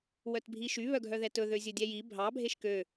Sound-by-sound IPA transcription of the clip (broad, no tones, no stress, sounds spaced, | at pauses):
w œ t bʱ i ʃ y β œ ɡʱ œ ð ɛ t ɵ ð ø zʲ ɵ dʲ ɛ j i bʱ ɑ bʱ e ʃ k ø